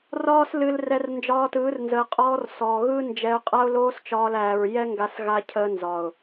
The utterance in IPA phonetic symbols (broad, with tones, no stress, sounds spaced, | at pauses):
r ɒː˦ s l ɨ˧ l r ɛ˧ r n d͡ʒ ɒː˧ t ɯː˨˦ r n z əː˨ qʼ ɔː˧ r s ɔː˨ ɣ ɯ˦ n d͡ʒ ɛ˧ ʊ̯ qʼ a˦ ʊ̯ l oː˦ s t͡ʃ ɒː˧ l æː˨ ɹ j ɛ˦ ŋ ɡ a˧ s ɣ a˧ cʰ əː˧ n z ɒ˨ ʊ̯